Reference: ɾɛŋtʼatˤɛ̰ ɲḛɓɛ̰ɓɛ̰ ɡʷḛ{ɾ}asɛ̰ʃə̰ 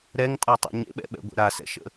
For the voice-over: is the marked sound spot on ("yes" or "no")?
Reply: yes